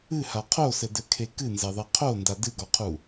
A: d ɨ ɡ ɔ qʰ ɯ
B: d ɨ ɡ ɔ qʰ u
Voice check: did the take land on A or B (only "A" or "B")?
B